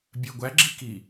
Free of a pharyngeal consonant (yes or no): yes